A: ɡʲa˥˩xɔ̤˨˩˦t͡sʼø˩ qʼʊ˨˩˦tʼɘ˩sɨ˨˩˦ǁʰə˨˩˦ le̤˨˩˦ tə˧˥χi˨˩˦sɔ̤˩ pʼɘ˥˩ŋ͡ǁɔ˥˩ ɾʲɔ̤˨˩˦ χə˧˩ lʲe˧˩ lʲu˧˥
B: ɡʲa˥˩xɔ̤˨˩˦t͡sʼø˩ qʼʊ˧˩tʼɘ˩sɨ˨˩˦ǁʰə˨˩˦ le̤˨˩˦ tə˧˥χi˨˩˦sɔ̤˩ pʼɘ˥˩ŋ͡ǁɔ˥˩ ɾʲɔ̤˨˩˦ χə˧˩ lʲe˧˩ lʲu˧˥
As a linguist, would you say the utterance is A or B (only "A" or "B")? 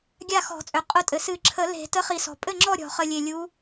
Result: B